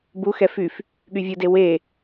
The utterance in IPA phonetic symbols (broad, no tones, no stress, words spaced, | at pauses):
buxɛ fyf | ɠyvʲude we